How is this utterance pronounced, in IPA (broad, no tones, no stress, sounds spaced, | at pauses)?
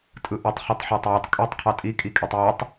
tʼ ɯ ʔ y tˤ χ i tˤ ħ æ tˤ j ø tˤ kʼ y tˤ qʰ ɑ tʼ i kʼ i kʼ e tˤ j ɑ tˤ